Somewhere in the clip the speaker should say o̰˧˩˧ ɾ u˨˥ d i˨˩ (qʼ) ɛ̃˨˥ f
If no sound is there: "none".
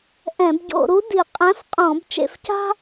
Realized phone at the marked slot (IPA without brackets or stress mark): qʼ